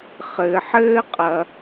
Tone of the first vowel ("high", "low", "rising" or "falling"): low